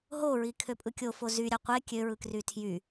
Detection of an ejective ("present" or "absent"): present